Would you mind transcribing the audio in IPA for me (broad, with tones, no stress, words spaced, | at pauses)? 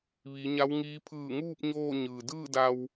ʋi˩˧ɲa˧˥wŋiː˧˥ pʰɯː˧˩ŋuː˥˨p̚ ɲoː˥˨ɲɯː˩ dɯː˥˨da˧w